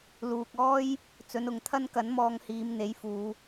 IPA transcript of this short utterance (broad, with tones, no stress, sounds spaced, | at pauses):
l uː˨ k̚ ɔː˥ j | t͡s ɵ˨˧ n ʊ˨ ŋ t̪ʰ ɐ˥ n k ɐ˨˥ n m ɔː˧ ŋ h iː˨˧ m n̪ e˨˥ j f uː˨˧